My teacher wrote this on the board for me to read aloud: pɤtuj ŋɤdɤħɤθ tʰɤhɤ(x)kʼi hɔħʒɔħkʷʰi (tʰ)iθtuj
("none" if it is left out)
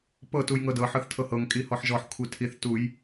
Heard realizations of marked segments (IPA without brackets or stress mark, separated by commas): ŋ, tʰ